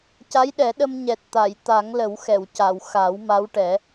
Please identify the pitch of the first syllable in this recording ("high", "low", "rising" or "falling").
rising